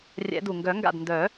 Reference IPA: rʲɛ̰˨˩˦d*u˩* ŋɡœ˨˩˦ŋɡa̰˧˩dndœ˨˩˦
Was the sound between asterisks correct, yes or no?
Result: yes